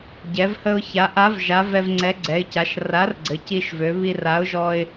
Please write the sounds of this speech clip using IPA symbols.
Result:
ɟ ɛ˩˧ v h ə˧ ʊ̯ ç a˩˧ ʔ a˨˥ v ʒ a˨˥ v ɛ˧ v ŋ͡ǀ ɛ˨˥ ɡ͡ǀ ɛ˩˧ ɪ̯ c a˩˧ ʃ r a˨˥ r ɡ͡ǀ ɘ˩˧ c i˧ ʃ v ø˩˧ β i˧ r a˨˥ ʊ̯ ʒ ɔ˧ ɪ̯

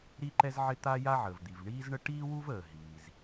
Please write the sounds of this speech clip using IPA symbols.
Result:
ɾ i˥ ǃ ɛ˥ z ʕ ɪ˥ t̪ a˥ j a˥ ʕ əː˩ v d̪ i˩ v ɳ iː˥ z ɳ ə˥ ʈ iː˥ w u˥ v əː˩ ɦ iː˩ z

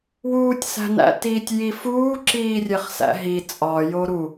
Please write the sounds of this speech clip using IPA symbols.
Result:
w uː tʲ s æ̤ n æ̰ t iː tʲ j i f uː ǁ iː rʲ e χ s æ̰ ɦ i t͡sʼ ɒ j o ɾ u

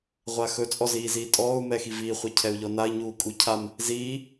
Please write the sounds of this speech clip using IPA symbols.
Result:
ʁʷ a x ɵ t͡sʼ ɔ z iː z iː tʼ ɔː u̯ m ɛ x i v iː χʷ ɛ cʰ ɛ u̯ ʎ ɔ n a i̯ ɲ uː kʼ u cʰ a m | z iː

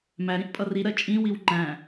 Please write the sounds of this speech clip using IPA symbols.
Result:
m æ ɾ ĩ ʔ pʼ ʌ r i ɾ ɜ t͡ʃʼ ĩ w i w ŋ͡ǃ æ̃

